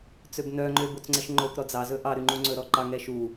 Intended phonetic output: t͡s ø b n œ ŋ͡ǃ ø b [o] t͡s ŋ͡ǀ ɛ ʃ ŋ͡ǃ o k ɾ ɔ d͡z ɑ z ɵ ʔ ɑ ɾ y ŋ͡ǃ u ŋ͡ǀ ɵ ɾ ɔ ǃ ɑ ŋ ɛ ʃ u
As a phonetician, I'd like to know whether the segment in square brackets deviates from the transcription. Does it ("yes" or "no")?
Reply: no